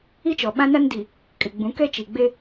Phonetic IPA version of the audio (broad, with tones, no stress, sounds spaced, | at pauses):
i˦ t͡ʃ ɔ˨ ɓ ã˦ n a˦ n d i˨ | kʼ ɪ˨ ɡ͡b ũ˨˦ k ɛ˦ t͡ʃ i˨ ɡ͡b e˦